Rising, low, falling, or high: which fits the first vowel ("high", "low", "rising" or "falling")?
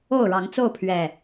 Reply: falling